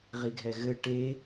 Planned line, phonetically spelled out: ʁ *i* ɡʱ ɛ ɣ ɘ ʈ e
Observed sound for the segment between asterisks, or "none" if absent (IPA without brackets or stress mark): i